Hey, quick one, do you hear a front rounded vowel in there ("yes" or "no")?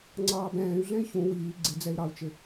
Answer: yes